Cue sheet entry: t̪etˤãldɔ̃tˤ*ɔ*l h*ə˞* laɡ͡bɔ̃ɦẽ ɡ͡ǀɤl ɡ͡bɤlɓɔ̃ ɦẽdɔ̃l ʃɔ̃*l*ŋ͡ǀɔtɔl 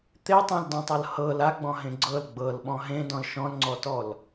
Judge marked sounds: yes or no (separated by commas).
no, no, yes